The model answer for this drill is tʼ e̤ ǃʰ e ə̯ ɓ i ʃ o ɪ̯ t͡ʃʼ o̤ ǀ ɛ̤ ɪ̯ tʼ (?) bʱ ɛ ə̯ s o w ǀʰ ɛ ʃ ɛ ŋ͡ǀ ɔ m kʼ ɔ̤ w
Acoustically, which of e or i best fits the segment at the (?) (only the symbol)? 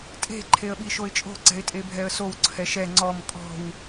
e